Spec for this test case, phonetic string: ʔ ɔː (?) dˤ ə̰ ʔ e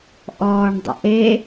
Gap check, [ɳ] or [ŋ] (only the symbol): ɳ